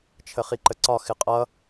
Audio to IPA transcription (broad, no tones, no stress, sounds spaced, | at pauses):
t͡ʃʰ ə χ i ǃ ə ǀ ɒ x ɪ qʼ ʌ